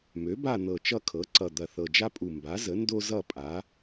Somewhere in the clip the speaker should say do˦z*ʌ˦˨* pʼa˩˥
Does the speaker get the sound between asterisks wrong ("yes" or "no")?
no